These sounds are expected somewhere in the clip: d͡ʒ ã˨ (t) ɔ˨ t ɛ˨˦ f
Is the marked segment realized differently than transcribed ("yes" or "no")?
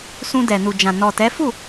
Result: yes